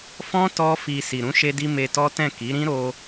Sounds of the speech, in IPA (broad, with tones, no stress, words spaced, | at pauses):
fɔ̃˦ tɔ˦fi˧ si˨ɾũ˨˦ʃe˧di˧ me˧tɔ˦tɛ̃˦˨ ki˨˦ɾĩ˦ ɾo˦